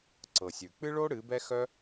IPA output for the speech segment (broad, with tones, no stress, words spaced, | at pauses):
ǀɤ˨sʲʉ˨ k͡pɨ˦ɭo˦ ɽɨ˨˦bɛ˦xœ˦